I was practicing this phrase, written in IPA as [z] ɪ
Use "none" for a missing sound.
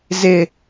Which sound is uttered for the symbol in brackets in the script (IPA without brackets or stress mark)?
z